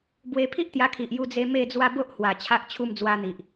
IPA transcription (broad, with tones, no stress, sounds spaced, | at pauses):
b w e˧ pʰ i˦ ʔ t̪ j a˧ kʰ i˨ ʔ j u˧ d͡z e˧ m e˥˧ d͡z w a˦ b o˦ ʔ h w a˨˩ t͡ɕʰ a˦ ʔ t͡ɕʰ u˦ m d͡z w a˧ n̪ i˨ ʔ